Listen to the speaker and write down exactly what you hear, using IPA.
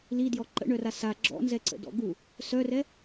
l i d j ɔ ǃ ə̰ ɳ œ r a s a ɡ͡ǁ ɔ̰ n z ɛ ǀ ə̰ d ɔ̰ ɡ u | s œ r ɛ

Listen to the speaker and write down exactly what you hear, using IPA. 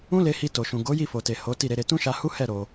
ũ˦ l e˧ h i˧ t o˨ ʃ ũ˨ ɡ o˨˦ j i˦˨ f o˨ t e˨ h o˨˦ t i˦˨ ɾ e˨˦ ɾ e˧ t ũ˦ ʃ a˧ h u˦ h ɛ˦˨ ɾ o˧

